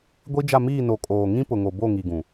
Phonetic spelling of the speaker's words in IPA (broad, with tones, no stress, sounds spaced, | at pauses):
ɡʷ i˦ d͡ʒ a˦˨ m iː˦˨ n o˨ kʼ oː˨ ŋ ĩ˦ p ʊ˨ ŋ o˨ b o˦˨ ŋ i˨ ɡ ũ˨